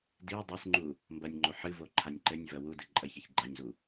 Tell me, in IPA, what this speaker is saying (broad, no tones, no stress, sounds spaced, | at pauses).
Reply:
d i w dˤ e s ŋ͡ǃ u | m b ɐ nʲ ŋ͡ǃ o ħ ɨ v o ǃʰ a nʲ ǃ ɘ nʲ v ɐ w u d ɨ ǃʼ ɐ ç ɐ ç ɡ͡ǃ a ɲ z u